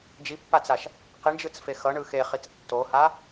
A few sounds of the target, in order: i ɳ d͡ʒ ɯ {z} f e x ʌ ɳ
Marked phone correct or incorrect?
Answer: incorrect